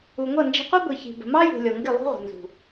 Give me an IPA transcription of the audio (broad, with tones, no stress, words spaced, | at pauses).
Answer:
u˨ŋʷʌ˦˨ nd͡ʒə̤˧qʷʌ˦ ɡʷi˨çi̤˨ bə̤˨mɑ˦jṳ˨ lʲɔ˨ŋɡɪ˦˨ lˠṳ˦ ʁʷə̤˨ nzṳ˨